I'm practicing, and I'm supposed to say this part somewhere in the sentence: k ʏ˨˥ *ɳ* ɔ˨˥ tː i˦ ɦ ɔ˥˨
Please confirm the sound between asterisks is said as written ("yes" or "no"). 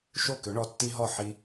yes